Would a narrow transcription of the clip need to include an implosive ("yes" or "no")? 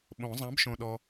yes